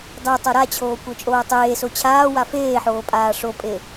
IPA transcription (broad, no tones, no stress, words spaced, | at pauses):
dˤetˤo ɾat͡ɕʰoː kʷə˞t͡ʃʼoːtˤeːso t͡ɕʰaːwa feːħoː pʼaːʂopʼe